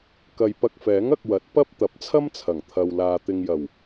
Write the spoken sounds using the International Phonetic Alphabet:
k ɐ˨ j p ɐ˧ k̚ f ɛː˨˥ ŋ ɐ˧ k̚ w ɐ˨˥ t̚ p ɐ˥ p̚ t̪ ɐ˨˥ p̚ t͡sʰ ɐ˥ m t͡sʰ ɐ˨˩ ŋ t̪ʰ ɐ˨ w l aː˨ t̪ ɪ˨ ŋ j ɐ˨˩ w

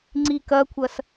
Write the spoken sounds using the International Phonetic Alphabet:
ŋ͡ǀ i k ɐ kʷʰ ɐ s

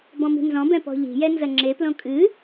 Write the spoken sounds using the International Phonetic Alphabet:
b ɔ̃ m i̤ n z ɔ̃ b ɛ̃ p ɔ̤ ʎ i̤ j ɛ n z ɐ ŋ͡ǁ e p l õ kʼ ɨ

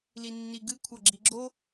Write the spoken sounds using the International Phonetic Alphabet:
l i nː i ɡ ɨ kʷʰ ɐ ɡ͡ǁ i ɡ͡ǁ o

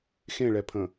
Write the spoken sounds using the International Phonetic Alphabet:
x ẽ ɭ ɛ pʰ ə̃

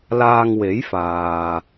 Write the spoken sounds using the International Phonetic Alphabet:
l aː˧ ŋ w e˨˥ j f aː˨

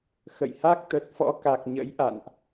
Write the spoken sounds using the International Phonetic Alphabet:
x ə̰˧˨ j h a˦˥ k̚ t̪ ə˨˩ t̚ f ɔ̰˧˥ k a˨˩ k̚ ɲ ə̰˧˥ j ʔ a̰˧˨ n ʔ

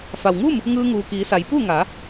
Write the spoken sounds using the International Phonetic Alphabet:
f a˩ w ŋ uː˥˨ m | ŋ ɯː˧ ŋ uː˩ k iː˩˧ s a˩˧ j p u˥˨ ŋ a˩˧

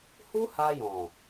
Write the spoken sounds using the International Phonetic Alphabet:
h u˦ h a˧ j ɔ̃˨

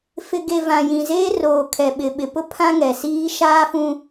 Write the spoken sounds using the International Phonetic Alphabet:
f ɪ˨ ɡ e˨ v ã˨ j ĩ˨ z eː˦ r oː˨ kʰ ɛ˨ ɓ ɪ˨ ɓ ɪ˨ p ʊ˦ pʰ ã˦ ŋ ɛ˨ s iː˦ ʃ aː˦ f ũ˦

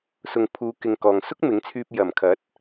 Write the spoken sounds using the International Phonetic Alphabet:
s ʊ˨ ŋ pʰ uː˨˧ k ɪ˨ ŋ k ɔː˨ ŋ s ʊ˥ k̚ m ɪ˨˥ ŋ t͡sʰ yː˧ p̚ j ɐ˨˩ m kʰ ɐ˨˥ t̚

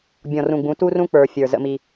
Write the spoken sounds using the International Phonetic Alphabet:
bʲ ɔ̃˨ r ũ˨ ɡ͡b ũ˨˦ t u˦ r ũ˦ k͡p ə˞˨ fʲ ə˞˨ z ə̰˦ m i˦

